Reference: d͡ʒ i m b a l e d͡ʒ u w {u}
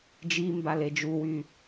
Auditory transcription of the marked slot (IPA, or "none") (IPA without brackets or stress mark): y